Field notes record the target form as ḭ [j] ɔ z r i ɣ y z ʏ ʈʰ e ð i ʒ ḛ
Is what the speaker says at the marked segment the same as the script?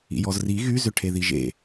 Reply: yes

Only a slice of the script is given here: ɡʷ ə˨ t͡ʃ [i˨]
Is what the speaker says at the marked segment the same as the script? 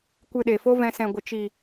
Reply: yes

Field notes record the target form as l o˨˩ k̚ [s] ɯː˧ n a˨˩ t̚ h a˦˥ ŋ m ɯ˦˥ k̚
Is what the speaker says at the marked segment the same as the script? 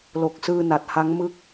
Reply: yes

